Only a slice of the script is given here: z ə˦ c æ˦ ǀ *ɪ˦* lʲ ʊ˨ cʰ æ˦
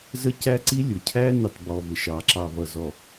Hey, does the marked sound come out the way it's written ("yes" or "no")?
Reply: no